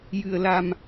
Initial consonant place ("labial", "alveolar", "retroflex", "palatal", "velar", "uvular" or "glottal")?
palatal